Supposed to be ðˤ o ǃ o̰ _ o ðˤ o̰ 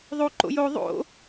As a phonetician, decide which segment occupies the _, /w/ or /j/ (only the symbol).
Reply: j